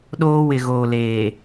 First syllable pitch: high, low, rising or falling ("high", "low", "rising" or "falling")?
high